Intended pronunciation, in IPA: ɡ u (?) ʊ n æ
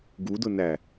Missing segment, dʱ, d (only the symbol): d